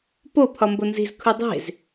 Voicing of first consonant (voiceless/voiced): voiceless